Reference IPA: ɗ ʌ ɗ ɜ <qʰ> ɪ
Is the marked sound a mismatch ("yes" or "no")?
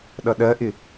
yes